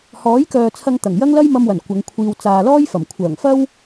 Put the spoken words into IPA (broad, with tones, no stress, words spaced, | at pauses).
hɔː˨˥jkœː˨t͡sʰɐ˧ŋt̪ɐ˨˩ŋ jɐ˥ŋlɐ˥jmɐ˧mwɐ˨˩n kʷɐ˨˧ŋkʷʰiː˧w t͡saː˨lɔː˥jfɐ˨˩m kʷʰœː˨˩ŋfɐ˥w